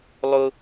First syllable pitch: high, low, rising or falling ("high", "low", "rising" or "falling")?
high